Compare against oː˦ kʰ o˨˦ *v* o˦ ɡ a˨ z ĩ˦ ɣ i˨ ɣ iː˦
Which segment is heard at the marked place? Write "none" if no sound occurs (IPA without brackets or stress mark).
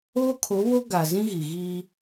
β